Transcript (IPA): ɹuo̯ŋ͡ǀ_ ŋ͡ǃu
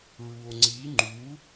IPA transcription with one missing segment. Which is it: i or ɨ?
i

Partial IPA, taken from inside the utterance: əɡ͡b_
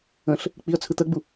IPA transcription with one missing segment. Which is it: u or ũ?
u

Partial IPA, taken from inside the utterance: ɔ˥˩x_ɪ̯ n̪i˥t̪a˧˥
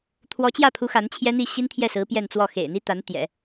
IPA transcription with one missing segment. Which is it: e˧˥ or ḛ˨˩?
ḛ˨˩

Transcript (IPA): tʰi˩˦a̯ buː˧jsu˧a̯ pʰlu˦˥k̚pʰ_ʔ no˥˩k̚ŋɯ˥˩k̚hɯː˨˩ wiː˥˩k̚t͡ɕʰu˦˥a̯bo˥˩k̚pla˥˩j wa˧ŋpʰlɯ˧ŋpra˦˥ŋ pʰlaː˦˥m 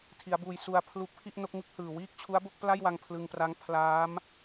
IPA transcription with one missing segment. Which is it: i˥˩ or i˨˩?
i˥˩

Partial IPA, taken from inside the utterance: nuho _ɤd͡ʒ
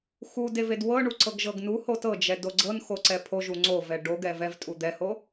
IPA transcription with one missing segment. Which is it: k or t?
t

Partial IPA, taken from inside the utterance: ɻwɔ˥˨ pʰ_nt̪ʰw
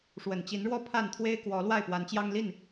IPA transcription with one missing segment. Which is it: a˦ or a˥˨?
a˥˨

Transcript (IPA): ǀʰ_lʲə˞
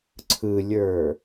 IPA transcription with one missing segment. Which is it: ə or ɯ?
ɯ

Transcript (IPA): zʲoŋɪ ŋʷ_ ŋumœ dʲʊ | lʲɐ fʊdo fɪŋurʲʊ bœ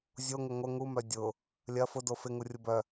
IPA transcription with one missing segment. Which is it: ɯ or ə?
ə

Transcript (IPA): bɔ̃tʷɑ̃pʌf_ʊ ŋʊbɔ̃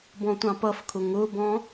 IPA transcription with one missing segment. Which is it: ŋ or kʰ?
kʰ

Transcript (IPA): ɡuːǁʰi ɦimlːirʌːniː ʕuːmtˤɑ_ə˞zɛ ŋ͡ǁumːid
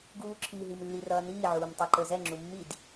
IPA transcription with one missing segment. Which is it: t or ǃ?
ǃ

